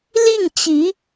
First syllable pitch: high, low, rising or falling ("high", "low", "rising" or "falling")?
falling